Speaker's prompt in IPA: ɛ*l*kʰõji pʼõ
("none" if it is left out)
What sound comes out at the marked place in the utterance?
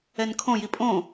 n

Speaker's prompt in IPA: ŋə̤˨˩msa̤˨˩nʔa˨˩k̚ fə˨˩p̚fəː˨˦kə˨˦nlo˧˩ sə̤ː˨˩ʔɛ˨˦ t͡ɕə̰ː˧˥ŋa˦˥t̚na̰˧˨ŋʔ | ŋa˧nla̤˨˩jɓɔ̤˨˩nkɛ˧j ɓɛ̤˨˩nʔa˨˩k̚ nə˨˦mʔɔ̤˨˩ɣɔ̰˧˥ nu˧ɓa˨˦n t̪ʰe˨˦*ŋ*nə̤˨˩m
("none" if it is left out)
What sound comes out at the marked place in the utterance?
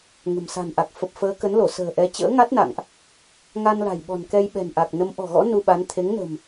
ŋ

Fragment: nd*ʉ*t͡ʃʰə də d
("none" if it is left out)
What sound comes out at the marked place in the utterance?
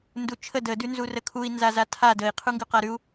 u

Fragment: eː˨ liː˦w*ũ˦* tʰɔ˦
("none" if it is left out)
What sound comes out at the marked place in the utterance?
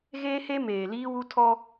u˦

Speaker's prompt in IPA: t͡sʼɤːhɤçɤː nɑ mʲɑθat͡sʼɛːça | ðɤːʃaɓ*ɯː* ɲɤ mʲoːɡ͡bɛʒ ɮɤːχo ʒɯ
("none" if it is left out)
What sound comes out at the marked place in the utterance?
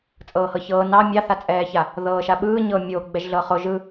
ɯː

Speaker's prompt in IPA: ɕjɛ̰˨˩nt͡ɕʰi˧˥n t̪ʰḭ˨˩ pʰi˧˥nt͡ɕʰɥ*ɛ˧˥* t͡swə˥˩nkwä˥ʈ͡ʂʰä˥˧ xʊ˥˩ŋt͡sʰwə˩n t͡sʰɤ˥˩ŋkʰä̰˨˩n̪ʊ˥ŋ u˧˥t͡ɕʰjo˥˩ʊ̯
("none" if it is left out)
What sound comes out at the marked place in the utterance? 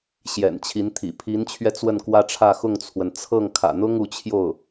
ɛ˧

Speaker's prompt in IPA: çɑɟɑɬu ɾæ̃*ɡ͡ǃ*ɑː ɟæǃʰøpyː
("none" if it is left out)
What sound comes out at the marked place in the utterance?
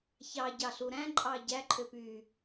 ǃʼ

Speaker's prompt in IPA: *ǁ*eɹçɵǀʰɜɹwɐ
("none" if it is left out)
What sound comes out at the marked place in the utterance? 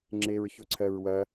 ŋ͡ǁ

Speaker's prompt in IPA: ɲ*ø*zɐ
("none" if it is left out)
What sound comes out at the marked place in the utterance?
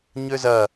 ø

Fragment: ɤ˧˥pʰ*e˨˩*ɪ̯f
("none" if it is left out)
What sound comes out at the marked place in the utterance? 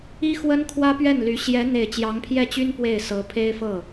e˥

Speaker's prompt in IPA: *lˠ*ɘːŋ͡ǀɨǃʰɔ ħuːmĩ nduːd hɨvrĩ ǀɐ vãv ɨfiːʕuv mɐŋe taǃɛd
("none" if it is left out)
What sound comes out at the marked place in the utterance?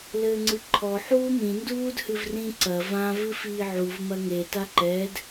l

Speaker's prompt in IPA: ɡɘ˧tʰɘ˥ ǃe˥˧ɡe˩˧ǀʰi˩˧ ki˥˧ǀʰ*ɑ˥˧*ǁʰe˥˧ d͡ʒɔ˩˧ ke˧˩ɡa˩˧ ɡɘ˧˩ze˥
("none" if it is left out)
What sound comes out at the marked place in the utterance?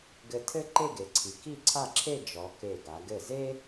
a˥˧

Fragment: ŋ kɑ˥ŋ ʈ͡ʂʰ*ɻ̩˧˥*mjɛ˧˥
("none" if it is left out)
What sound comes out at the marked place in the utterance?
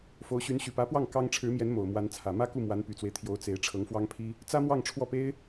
ɻ̩˧˥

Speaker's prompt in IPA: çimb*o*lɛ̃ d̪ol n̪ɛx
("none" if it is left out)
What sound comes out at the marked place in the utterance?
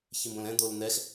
õ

